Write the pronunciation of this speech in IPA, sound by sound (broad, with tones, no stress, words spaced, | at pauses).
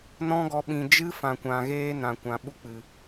nɔ̃˦ɡɔ˧ ɓĩ˨d͡ʒɨ˦ fã˨kʷã˨ɣeː˦ nã˨kʷã˨ɓu˦ k͡pɨ˨